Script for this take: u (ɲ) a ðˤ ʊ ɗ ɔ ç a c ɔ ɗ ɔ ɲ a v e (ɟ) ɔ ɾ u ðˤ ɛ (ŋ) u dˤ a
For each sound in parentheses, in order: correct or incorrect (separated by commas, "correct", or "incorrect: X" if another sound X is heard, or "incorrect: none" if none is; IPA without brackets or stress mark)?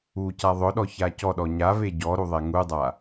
incorrect: c, correct, correct